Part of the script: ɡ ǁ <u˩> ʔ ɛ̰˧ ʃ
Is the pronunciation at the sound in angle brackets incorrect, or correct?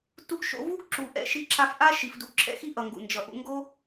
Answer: correct